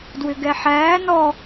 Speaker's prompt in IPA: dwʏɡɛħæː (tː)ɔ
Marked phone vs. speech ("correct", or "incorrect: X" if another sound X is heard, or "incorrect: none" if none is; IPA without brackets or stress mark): incorrect: n